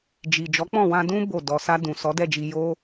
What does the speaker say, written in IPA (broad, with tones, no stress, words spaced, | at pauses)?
d͡ʒi˨ d͡ʒɔ˨˦k͡pɔ̃˦˨ wã˧dũ˦ bo˦˨ dɔ˨sa˧ dũ˨sɔ˨˦dɛ˦˨d͡ʒi˧ jo˦